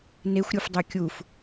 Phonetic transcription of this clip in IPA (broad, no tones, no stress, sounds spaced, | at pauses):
n e xʷ ɾʲ u f dˤ y kʲ u f